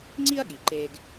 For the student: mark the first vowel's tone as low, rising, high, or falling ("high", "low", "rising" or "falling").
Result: high